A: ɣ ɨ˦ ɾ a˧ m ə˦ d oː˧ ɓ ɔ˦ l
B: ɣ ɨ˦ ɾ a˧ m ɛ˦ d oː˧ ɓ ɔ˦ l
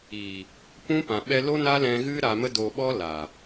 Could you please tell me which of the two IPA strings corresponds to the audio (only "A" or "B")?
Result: A